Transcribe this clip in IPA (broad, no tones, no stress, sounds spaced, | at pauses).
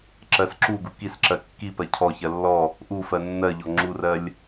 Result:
ǁ ɜ s ǁ u ɡ u k i s ǁ ɜ kː i p ɜ cʰ ɔ ç ɜ lː ɔ | ʔ u f ɜ nː ɜ ʎ ɔ ŋ͡ǁ u r ɜ lʲ